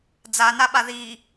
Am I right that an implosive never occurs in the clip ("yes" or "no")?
no